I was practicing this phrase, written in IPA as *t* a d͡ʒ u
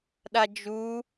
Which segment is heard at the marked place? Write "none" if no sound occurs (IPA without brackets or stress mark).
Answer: ɗ